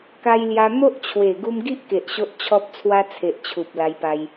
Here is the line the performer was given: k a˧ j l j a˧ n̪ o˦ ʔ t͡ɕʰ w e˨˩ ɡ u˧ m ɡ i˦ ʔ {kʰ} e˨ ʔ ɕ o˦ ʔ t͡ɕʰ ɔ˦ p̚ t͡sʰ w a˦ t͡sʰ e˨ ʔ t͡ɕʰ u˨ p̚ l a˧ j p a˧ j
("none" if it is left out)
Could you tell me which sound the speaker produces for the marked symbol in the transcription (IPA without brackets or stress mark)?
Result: k